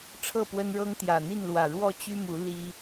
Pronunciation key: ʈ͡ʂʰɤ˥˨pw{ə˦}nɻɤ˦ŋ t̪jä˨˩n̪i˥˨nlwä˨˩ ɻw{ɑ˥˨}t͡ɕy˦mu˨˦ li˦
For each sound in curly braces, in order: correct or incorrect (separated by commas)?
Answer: correct, incorrect